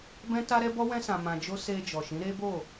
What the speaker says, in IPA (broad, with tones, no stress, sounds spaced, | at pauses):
b ɛ̃˦ t a˦ ɾ ɛ˦ b ɔ˦ w ɛ̃˦ s ã˧ m ã˧ d͡ʒ o˦ s e˧ d͡ʒ ɔ˨ ʃ ĩ˨˦ ɾ e˦ b o˦˨